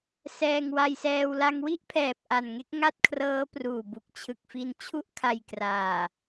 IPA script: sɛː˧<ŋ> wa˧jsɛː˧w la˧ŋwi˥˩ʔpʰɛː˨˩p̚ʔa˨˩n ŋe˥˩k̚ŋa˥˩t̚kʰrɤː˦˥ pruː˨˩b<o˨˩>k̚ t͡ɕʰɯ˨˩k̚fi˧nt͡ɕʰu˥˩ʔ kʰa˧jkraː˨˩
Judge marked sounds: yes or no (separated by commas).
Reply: yes, no